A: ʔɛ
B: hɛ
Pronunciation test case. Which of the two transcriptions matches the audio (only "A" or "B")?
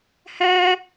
B